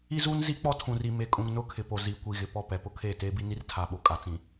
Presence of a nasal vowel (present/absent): present